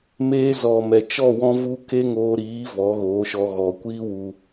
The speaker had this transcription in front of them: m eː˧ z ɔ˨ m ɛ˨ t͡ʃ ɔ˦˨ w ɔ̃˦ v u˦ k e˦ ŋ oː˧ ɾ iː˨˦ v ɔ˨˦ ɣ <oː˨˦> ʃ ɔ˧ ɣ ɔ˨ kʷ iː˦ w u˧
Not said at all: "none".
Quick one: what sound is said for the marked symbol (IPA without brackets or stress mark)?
oː˨˦